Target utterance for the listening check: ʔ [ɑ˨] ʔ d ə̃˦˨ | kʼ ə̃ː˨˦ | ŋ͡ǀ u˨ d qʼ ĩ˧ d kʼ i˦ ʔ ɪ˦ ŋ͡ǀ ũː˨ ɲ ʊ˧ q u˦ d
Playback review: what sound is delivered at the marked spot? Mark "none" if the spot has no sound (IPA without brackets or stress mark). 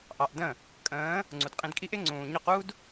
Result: ɑ˨